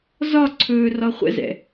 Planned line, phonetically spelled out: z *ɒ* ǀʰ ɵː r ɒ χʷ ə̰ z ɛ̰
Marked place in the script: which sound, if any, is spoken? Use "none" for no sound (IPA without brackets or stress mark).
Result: ɒ